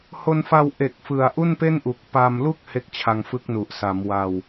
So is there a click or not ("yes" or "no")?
no